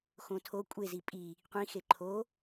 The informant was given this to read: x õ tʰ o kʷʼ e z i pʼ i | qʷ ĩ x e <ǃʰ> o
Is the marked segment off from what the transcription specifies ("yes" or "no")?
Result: no